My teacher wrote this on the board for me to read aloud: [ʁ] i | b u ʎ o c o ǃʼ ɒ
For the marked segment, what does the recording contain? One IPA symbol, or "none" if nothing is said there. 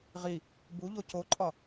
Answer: ʁ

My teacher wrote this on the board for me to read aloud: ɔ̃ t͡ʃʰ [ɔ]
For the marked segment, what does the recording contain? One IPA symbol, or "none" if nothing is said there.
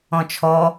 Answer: ɔ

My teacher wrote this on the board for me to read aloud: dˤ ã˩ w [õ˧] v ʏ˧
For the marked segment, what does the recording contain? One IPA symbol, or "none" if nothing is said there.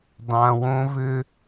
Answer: õ˧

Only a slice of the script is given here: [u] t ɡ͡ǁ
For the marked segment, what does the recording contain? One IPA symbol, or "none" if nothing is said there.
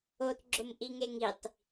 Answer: o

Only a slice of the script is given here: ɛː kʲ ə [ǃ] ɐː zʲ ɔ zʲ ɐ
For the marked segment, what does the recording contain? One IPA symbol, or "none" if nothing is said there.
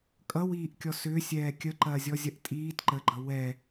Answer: ǃ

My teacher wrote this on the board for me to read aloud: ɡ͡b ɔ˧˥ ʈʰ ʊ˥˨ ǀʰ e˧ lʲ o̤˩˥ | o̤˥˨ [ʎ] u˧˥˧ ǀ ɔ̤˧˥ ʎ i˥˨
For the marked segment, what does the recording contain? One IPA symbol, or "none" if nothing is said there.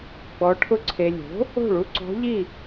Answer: ɭ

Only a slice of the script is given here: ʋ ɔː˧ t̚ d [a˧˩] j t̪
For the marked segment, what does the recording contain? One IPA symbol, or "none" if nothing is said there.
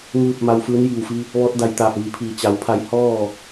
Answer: a˧˩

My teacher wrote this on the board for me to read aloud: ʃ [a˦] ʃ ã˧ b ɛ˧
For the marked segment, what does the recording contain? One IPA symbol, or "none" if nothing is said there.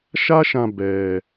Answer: a˦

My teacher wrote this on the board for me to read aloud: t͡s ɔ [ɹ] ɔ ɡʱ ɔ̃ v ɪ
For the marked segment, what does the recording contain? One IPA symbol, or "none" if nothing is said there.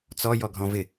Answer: j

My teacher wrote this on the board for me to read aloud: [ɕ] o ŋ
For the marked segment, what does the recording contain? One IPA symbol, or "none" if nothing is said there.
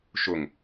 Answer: ʃ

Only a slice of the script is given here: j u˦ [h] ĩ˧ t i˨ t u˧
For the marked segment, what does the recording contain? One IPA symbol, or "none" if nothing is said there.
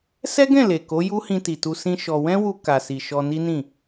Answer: h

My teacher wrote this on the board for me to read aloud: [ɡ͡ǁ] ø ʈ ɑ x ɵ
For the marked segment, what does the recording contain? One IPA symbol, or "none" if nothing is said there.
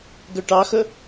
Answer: ɡ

